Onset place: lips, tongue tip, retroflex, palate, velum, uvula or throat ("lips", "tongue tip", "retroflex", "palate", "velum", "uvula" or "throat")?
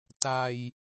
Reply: tongue tip